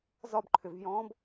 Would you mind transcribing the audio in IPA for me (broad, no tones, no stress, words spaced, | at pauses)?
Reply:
zɒb ǃʰʏvjɔ̃ːb